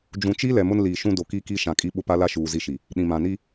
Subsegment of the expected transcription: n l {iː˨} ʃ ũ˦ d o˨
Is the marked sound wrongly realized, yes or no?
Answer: no